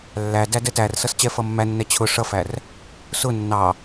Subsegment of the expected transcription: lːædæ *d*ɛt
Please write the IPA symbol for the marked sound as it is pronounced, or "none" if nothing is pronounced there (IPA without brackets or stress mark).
d